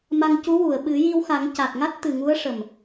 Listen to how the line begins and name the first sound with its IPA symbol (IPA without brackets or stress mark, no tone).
m